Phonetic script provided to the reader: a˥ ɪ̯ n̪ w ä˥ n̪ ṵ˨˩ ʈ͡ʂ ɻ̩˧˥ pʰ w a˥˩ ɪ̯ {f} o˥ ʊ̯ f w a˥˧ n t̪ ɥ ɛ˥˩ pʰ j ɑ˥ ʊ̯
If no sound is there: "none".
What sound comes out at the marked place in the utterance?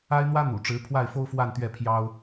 f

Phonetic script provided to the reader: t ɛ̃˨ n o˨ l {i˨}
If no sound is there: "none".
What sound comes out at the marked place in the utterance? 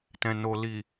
i˨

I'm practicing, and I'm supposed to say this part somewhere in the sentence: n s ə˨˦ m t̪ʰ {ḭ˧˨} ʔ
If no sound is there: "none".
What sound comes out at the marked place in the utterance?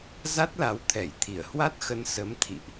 ḭ˧˨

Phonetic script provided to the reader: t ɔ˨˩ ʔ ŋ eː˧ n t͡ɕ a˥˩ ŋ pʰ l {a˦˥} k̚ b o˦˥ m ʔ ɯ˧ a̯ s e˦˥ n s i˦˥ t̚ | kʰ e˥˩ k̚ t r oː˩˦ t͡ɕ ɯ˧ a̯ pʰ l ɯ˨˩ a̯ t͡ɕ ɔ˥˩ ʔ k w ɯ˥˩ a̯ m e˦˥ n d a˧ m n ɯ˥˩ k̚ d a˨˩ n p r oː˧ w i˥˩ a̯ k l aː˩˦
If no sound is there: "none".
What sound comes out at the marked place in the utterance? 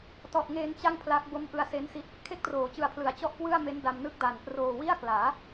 a˦˥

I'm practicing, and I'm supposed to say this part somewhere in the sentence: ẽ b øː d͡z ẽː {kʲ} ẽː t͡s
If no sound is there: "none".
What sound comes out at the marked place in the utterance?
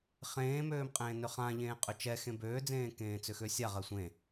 k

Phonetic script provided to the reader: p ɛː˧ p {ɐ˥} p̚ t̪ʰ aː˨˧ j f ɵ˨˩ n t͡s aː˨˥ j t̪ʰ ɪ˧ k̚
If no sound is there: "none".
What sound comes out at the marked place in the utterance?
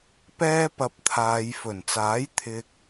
ɐ˨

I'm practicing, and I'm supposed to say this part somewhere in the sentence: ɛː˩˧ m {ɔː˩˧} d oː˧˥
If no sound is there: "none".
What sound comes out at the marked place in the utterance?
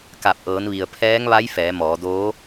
ɔː˩˧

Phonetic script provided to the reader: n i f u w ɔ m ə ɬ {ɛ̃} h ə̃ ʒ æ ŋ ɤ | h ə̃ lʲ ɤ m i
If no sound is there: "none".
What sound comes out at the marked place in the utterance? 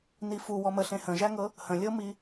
ẽ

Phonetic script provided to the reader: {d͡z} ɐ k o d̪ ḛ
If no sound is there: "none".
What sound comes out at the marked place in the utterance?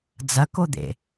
d͡z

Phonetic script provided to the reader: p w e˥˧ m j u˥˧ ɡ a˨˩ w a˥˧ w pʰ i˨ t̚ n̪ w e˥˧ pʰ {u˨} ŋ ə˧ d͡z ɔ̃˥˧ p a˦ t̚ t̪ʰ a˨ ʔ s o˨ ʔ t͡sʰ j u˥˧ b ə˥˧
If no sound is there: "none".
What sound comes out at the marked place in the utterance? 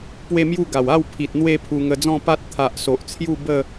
u˧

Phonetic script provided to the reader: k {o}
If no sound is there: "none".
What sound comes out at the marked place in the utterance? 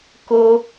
o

